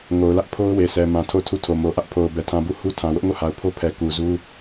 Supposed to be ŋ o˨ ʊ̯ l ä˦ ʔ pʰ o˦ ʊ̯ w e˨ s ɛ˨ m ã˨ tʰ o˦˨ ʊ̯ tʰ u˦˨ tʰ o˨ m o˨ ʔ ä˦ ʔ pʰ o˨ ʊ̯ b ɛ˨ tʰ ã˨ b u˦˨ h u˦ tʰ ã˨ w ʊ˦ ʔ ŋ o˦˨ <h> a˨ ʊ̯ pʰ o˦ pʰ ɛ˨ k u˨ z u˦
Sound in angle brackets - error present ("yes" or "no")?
no